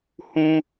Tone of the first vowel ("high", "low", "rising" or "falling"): high